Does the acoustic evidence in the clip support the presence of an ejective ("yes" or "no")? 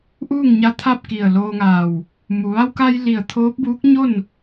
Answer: no